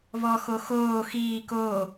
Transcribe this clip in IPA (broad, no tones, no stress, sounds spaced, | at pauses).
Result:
β ɔ x o x oː x iː k oː